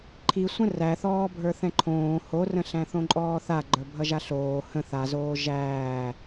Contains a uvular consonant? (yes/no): no